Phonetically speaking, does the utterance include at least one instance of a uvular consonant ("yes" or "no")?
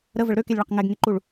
yes